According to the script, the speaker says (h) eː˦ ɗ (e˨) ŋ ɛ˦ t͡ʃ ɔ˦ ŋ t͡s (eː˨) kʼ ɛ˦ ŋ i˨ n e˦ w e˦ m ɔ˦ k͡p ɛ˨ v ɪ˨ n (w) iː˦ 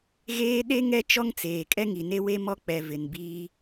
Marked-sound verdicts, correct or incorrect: incorrect: ɣ, incorrect: e˦, correct, incorrect: b

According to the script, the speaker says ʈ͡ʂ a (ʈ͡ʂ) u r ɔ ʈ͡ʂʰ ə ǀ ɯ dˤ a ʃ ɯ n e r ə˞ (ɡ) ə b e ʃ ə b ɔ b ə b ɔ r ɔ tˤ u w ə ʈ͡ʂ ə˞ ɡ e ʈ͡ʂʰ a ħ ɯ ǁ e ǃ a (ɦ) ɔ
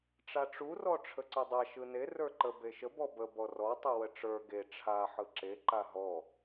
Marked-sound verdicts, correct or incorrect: correct, incorrect: ǃ, correct

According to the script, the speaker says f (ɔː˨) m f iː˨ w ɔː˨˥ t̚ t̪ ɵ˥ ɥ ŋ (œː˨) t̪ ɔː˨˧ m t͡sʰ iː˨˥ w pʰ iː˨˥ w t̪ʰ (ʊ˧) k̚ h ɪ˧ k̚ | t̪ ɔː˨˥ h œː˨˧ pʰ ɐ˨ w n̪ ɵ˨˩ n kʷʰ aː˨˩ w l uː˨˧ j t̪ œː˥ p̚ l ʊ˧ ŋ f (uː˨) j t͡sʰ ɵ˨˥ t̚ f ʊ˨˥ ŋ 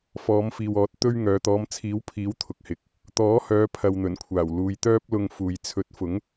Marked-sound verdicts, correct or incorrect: incorrect: ɔː˨˧, incorrect: œː˨˧, correct, correct

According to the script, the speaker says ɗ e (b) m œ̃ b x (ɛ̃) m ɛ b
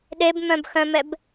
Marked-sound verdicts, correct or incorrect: correct, incorrect: œ̃

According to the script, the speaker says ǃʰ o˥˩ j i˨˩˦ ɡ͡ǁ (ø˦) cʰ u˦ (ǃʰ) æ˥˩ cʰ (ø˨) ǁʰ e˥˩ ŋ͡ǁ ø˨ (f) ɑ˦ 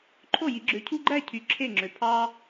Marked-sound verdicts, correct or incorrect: incorrect: ø˨˦, incorrect: ɡ͡ǃ, incorrect: y˨, incorrect: pʰ

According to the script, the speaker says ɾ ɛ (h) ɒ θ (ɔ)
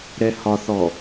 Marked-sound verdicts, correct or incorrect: correct, correct

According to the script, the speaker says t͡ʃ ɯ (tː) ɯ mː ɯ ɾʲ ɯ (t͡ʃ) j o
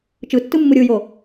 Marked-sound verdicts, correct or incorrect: correct, incorrect: none

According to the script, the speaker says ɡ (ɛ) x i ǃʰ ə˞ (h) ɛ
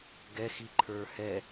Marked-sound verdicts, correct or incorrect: correct, correct

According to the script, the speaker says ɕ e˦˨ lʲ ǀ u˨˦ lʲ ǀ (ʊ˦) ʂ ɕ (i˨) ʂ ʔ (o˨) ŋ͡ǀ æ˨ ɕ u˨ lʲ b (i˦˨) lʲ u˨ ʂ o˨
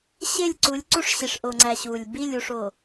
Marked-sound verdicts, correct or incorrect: incorrect: u˦, correct, correct, correct

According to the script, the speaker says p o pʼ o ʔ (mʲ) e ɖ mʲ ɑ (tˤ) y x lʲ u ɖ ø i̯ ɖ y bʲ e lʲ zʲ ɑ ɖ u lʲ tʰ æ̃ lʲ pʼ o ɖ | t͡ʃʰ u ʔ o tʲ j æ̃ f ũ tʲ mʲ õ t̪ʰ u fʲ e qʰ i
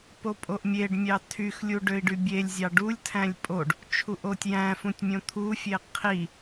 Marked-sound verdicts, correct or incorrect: correct, incorrect: tʰ

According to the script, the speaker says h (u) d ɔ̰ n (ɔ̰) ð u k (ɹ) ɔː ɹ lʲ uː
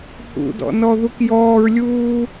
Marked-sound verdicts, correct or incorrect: incorrect: ṵ, incorrect: ɔ, incorrect: j

